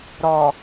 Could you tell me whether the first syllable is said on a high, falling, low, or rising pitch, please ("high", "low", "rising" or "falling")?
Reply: low